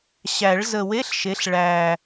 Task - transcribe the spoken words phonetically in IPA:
ɕ æ˨˩˦ ɭ z ə˨˩ w e˧˥˧ ɬ ʃ e˩˥ ɬ ɭ æ˨˩

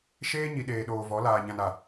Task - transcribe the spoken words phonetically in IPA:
ʃ eː˦ ɲ i˨ ɗ eː˨ ɗ oː˨ v ɔ˨˦ l aː˨ ɲ ã˨ n a˨

